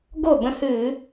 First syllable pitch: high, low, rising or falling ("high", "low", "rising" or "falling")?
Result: falling